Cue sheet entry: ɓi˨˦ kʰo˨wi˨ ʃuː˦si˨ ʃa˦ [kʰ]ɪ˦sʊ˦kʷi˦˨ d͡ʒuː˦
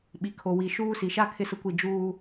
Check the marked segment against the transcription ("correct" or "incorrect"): correct